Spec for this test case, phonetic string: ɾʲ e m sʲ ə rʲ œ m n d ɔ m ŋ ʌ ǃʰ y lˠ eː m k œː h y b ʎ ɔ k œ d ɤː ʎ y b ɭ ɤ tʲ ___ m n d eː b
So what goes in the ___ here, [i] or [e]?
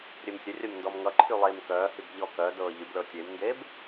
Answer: e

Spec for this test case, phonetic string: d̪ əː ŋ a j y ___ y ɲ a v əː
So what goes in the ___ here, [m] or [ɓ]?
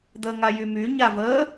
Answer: m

